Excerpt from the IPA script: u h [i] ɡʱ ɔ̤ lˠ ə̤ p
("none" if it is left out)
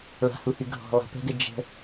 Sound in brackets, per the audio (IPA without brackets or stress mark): y